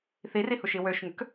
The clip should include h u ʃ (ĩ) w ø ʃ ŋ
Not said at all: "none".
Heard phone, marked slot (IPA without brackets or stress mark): i